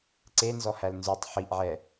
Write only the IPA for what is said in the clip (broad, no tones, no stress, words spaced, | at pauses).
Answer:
ǀenzɔhæl nzʉtˤ ħiʔʕɛ